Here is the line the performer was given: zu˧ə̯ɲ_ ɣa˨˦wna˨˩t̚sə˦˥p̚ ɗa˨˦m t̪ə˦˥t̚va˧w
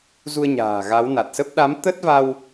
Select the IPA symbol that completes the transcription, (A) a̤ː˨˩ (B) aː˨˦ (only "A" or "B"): A